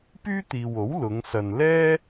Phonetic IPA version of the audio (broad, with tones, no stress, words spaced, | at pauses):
pyː˥t̪iː˨wo˨˥w lʊ˨˧ŋ sɐ˨nlɛː˥